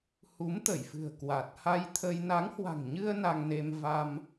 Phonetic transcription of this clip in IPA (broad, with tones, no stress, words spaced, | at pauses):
hu˨˦mt̪ə˧˩j fɨ̤˨˩ə̯kwa˨˩t̚ ha˧jt̪ʰə˧j na˨˦ŋhwa̤˨˩ŋɲɨ˧ə̯ na˧ŋne˧mva˧m